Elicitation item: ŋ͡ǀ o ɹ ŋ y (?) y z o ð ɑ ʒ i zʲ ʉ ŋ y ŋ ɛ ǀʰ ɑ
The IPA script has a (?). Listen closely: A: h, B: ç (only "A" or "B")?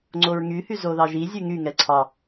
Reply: A